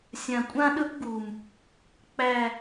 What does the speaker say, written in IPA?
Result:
sʲã˨kʷʼã˦ ɗɵ˦pɡu˨m | k͡pæ˨

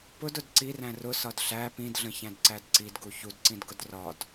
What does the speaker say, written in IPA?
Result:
pʊdʊd ǀiræ̃ rʊsɒd ɬæ pĩdɮə̃çæ̃dǀæd ǀidɡu çudǀĩdɡʊd rɒd

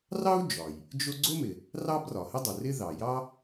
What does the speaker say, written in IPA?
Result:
rɑ˥u̯ d͡ʒɒ˩j | d͡ʒʊ˥ ɡ͡ǀʊ˥mɪ˩ | rɑ˥brɒ˩hɪ˥dˤʊ˩ rɪ˥ ðɑ˩jɑ˥

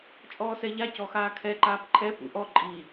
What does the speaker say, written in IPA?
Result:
t͡ʃʼɔːsɛʎa cɔxaːkʰɛ ǃaːpǃʰɛ pṵʔɔ ǃʼi

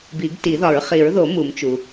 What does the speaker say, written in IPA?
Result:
bi˨˩˦ɡti˨˩˦ðɒ˨˩˦ɹ χi˨˩˦ɹðo˨˩˦ mu˨˩˦mt͡ʃu˩

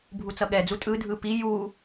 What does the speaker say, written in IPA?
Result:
bʱut͡sʌɠɛd͡zu tʼɯdʱɯ pi ju

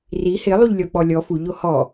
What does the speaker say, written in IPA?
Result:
ri hɪ lˠuʎlʲɔk͡pɔlʲɔ fu ʎohɔ

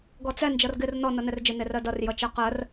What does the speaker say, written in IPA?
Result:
ɡɔt͡sɛ nd͡ʒʌrɡɪr nɔ nʌnɛrd͡ʒɪ nerɜdʌr jʌt͡ʃɜqɜr

